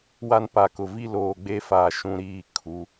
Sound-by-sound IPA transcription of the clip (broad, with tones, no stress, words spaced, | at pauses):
wa˦npa˨kʊ˨ vi˦loː˨ɡ͡be˦faː˨ ʃũ˦ ɾiː˦˨ kʰu˨˦